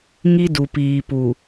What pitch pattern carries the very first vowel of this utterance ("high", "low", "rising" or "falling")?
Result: high